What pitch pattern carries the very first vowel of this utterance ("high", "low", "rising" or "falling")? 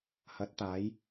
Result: rising